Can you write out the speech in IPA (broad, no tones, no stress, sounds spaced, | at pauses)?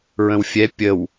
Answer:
ɹ ə̃ w fʲ ɛ pʲ ə w